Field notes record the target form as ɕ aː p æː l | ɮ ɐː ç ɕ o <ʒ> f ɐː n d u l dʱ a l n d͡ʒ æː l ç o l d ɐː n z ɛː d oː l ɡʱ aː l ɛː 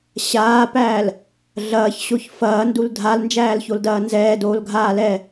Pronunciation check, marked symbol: incorrect: ç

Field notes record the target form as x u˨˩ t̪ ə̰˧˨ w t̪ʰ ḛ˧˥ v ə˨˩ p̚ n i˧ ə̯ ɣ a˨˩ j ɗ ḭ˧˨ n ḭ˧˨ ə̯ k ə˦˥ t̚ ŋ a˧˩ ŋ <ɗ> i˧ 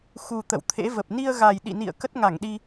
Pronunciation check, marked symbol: correct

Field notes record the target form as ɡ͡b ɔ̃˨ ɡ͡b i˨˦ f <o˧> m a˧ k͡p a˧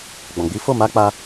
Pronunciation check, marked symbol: incorrect: o˦˨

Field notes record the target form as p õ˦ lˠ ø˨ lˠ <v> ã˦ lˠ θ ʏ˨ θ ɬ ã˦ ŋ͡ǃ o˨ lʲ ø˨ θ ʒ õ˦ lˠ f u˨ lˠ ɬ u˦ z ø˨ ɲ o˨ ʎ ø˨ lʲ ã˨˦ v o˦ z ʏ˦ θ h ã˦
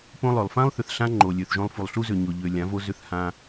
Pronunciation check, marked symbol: incorrect: f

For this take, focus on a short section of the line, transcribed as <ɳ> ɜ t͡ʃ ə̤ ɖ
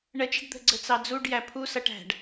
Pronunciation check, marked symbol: correct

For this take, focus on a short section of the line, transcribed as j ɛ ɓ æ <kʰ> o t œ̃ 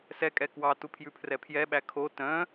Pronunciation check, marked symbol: correct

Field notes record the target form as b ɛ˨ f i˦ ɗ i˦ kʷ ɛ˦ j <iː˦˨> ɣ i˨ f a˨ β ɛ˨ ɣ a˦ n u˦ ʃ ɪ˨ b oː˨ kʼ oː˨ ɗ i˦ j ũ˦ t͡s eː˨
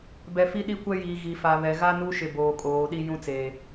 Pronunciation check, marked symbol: incorrect: iː˨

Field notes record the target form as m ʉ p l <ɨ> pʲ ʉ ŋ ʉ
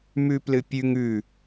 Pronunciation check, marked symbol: correct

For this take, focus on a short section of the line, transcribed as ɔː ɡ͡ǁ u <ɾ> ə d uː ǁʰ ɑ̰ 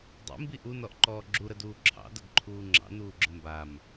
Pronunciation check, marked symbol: correct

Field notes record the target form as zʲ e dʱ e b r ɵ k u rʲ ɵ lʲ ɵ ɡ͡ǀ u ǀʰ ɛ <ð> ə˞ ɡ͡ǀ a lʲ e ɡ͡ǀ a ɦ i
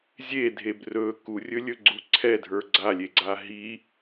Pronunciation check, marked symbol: incorrect: dʱ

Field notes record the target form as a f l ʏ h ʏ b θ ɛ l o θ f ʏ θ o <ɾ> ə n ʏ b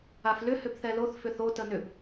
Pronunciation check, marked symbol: incorrect: t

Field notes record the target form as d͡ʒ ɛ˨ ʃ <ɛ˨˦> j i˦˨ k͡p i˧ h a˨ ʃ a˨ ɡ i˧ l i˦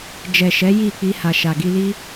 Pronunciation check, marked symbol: correct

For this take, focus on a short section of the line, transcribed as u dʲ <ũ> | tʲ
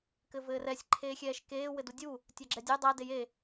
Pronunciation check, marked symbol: incorrect: u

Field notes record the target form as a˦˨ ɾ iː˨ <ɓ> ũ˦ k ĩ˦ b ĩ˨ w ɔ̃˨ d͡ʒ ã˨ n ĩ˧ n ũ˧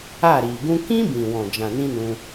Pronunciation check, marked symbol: incorrect: ɡ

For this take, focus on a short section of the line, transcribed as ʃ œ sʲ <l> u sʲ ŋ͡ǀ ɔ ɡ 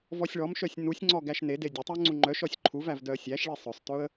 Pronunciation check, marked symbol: incorrect: n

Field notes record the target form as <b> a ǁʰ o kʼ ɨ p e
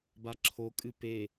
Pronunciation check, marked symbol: correct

